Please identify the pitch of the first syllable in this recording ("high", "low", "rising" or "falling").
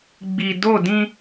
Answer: low